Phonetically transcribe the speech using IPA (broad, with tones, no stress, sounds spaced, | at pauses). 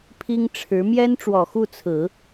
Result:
pʰ i˥ ŋ ʈ͡ʂʰ ɻ̩˧˥ m j ɛ˥ n ʈ͡ʂ w ɔ˨˩ x u˥˩ t͡sʰ ɹ̩˨˩˦